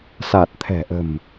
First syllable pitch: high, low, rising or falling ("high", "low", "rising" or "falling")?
low